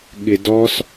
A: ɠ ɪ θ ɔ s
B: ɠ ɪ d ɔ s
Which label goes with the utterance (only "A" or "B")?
B